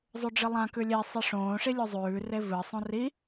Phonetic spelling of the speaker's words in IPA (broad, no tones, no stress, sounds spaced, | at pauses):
zˤ ʉ ɖ͡ʐ ɨ lˠ ã k ʉ lʲ e sˤ i ʂ õː ʂ i lʲ u zˤ ʉː r e v ɨ sˤ õ r i